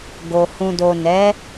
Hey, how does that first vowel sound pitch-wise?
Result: low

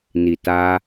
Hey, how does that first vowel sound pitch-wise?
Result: low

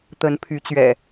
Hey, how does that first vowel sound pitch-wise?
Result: rising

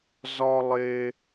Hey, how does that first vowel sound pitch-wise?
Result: high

